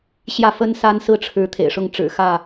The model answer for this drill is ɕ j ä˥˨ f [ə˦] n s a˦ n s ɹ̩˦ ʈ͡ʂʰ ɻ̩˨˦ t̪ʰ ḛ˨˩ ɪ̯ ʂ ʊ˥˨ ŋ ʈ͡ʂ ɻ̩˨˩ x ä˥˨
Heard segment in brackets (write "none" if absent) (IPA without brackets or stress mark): ə˦